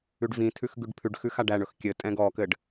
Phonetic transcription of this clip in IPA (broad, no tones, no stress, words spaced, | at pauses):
ʉɖvĩtʰʉx ɡʉɖpʰʉɖxʉ xaɖæɳɵx kʲɘ tʼɛ̃ɡɔkɘɖ